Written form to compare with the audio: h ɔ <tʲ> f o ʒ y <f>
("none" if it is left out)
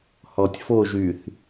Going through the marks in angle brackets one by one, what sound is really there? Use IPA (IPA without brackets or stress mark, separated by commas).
tʲ, θ